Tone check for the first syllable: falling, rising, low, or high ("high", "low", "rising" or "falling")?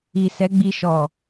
low